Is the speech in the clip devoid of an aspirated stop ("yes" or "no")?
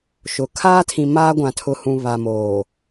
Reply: no